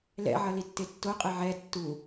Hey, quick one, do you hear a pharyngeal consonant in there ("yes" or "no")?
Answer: yes